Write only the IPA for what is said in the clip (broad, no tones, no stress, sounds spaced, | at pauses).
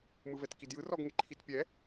m ɯ v ɛ t k i d j ɯ r ɔ ɡ ŋ e ǃʰ i t pʲ ɛ